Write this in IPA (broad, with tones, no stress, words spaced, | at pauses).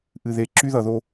ʔɨ˨ðe˨ ǁy˦ ðʌ˨ðo˦